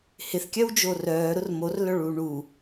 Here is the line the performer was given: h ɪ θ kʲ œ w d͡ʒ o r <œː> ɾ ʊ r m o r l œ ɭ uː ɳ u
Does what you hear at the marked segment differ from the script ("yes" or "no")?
no